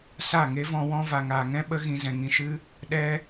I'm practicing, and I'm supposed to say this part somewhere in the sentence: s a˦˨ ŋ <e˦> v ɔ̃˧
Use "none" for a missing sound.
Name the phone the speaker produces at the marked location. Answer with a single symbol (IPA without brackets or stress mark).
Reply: e˦